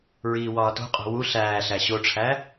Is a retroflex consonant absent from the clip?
no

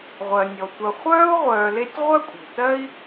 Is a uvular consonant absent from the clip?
no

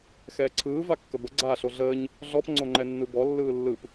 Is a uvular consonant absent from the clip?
yes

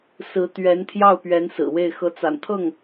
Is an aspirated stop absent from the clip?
no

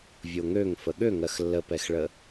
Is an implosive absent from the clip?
no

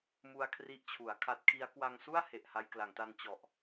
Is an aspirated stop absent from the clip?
no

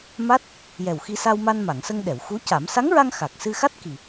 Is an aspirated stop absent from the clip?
yes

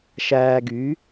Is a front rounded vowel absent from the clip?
no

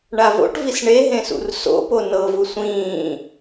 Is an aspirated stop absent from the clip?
yes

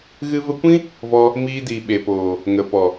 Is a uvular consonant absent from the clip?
yes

